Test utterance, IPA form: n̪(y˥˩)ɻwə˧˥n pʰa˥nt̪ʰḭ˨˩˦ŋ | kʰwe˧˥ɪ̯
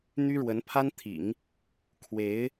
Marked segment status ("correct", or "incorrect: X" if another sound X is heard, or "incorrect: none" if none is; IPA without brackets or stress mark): incorrect: y˥